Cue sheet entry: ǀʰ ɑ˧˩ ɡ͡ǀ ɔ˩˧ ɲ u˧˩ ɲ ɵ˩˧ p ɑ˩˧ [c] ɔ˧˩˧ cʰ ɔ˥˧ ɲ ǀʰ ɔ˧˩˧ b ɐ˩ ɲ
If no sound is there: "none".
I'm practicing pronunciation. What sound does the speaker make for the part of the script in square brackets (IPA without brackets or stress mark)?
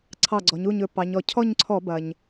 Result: ɲ